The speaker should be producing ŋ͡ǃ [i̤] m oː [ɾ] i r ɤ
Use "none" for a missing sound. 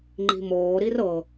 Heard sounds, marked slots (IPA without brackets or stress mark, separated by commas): i̤, ɾ